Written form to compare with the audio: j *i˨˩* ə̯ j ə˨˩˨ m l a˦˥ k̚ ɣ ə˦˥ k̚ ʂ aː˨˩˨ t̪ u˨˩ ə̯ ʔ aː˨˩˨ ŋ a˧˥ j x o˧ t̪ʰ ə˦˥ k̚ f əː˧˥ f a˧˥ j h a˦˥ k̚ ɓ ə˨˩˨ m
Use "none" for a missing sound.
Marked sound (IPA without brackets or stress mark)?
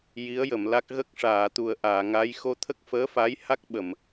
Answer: i˧˥